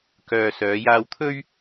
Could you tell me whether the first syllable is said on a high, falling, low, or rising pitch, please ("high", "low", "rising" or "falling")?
low